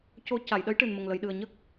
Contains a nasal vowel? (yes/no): no